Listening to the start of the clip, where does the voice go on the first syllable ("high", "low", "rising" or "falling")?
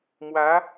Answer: rising